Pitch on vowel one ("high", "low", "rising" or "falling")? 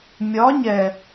rising